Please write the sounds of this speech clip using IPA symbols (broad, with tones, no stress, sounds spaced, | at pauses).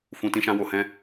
f ũ˧ t ĩ˦ ʃ ã˦ w o˧ h ɛ̃˦